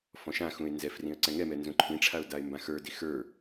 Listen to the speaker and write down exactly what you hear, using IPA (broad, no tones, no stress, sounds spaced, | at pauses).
f ɔ̃ ʃ ã x ũ ɪ̯ n z ɛ f r ĩ ə̯ ǀ ɛ̃ ŋ ɛ m ɛ n z ũ ǃʰ ĩ ʈ͡ʂʰ a ʊ̯ d a ɪ̯ m b ã x ə˞ d i x ə˞